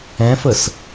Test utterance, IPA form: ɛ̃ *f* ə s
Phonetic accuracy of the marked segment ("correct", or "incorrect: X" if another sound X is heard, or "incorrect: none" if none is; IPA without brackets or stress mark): correct